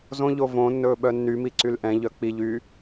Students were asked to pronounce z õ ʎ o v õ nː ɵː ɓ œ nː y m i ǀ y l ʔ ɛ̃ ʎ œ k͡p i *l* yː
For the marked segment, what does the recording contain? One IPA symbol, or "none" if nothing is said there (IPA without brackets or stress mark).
ʎ